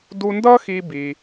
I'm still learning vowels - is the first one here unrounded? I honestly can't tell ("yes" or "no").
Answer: no